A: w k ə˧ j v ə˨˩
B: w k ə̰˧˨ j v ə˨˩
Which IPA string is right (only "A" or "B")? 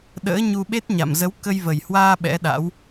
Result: A